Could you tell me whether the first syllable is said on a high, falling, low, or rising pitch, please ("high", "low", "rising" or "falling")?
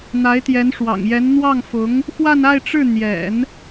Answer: rising